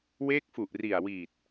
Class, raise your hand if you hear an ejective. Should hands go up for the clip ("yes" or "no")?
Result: no